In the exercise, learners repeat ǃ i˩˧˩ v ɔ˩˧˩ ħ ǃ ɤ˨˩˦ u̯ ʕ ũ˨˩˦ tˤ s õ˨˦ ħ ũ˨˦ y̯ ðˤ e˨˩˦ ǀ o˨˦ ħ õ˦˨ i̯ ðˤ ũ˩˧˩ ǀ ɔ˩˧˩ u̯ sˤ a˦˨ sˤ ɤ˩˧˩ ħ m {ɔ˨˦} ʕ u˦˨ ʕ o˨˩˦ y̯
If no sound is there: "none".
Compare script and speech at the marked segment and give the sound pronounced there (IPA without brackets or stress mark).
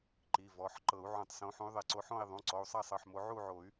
o˨˦